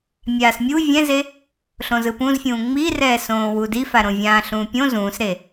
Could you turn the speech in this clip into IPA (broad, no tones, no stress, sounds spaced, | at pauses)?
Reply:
mʲ aː s mʲ u vʲ ɛ̃ z e | ɬ õ z ɯ p ũ z fʲ ũː ŋ͡m i r ɛː s õː w u d i f a ɾ õ vʲ ãː ɬ ũː pʲ õ z ũː s ɾ e